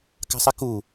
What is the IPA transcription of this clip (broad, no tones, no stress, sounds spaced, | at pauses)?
k a̤ sˤ i k u